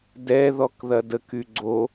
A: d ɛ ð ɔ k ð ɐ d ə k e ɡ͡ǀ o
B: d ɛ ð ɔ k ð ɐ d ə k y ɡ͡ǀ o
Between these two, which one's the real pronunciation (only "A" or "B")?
B